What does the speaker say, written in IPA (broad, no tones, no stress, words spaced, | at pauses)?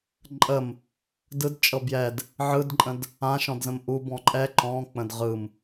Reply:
ǃʼəm | dɯdt͡ʃʼɤ bjɛd | ʕɯdǃʼə̃d | ãʃɔ̃dzə̃m ʔubɔ̃ ǃʼɛ ǃɔ̃k͡pə̃d ʁɯm